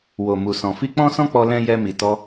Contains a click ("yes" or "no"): no